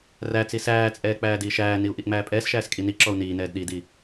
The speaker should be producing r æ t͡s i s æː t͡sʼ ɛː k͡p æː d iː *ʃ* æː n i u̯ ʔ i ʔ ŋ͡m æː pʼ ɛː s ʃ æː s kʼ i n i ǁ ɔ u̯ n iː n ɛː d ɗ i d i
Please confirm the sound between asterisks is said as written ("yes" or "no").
yes